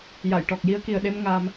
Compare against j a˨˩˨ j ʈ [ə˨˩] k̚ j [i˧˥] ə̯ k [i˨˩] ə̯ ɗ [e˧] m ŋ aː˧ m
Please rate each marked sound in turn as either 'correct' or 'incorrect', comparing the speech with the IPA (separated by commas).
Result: incorrect, incorrect, correct, correct